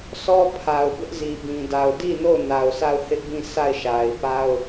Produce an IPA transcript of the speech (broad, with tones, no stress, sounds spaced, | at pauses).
sʰ ɔ˦ pʰ a˨ ʊ̯ b ɪ˦ ʔ z i˨ b ĩ˨ d a˨ ʊ̯ d i˦˨ n o˦˨ ʊ̯ n a˨ ʊ̯ s a˦˨ ʊ̯ h ɪ˦ ʔ b ĩ˦˨ s a˦˨ ɪ̯ ʃ a˨ ɪ̯ p a˦ ʊ̯